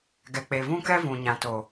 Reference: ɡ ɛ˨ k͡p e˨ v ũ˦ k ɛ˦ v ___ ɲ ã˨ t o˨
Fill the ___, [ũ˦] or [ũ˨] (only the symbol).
ũ˨